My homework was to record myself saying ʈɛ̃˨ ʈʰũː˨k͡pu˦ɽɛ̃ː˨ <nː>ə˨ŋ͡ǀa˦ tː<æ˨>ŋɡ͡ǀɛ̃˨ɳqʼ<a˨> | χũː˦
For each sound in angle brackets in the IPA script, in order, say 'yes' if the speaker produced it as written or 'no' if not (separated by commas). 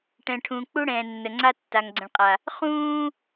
yes, no, yes